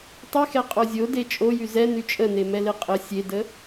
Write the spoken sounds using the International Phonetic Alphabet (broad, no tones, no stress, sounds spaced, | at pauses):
tˤ y x ɛ qʼ o zʲ o d e t͡ʃʼ o j y z ɛ n y t͡ʃʼ ə n e m ɛ l e qʼ ə sʲ e d ə